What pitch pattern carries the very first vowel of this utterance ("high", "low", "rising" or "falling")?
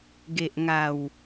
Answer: low